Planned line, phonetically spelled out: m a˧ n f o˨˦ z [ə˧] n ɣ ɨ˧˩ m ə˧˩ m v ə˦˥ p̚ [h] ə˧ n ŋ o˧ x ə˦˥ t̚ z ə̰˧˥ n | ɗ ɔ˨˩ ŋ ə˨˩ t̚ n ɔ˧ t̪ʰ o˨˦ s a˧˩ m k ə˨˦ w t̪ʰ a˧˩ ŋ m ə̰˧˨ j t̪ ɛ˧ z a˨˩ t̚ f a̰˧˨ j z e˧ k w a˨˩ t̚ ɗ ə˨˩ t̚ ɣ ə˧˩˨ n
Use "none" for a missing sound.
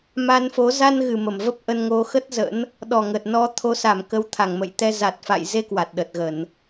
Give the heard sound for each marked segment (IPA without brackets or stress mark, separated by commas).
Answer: a˧, ʔ